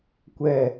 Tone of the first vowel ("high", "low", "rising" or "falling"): high